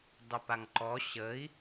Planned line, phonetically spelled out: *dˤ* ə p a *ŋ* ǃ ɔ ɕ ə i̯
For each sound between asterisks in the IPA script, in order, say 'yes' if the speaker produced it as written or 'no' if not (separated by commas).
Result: yes, yes